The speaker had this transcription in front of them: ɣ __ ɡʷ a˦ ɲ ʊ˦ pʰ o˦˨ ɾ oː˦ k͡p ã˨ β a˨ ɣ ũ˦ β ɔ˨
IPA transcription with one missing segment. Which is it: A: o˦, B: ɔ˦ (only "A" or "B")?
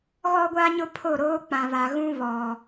B